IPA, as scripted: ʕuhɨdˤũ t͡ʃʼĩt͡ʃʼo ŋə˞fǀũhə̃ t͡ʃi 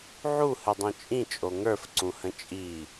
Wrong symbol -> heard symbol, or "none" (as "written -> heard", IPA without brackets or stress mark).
t͡ʃ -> t͡ʃʼ